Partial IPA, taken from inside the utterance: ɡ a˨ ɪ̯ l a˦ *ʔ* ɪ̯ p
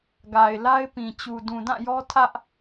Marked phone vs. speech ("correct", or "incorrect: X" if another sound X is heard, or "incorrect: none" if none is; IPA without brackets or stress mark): incorrect: none